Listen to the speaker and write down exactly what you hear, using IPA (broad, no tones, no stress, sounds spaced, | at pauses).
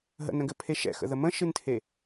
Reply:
ɦ ə̰ n ə̃ ɡ ɘ pʰ e ʃ ɛ̰ x ə̰ ð ə m ə̃ ʃ ɨ n tʰ e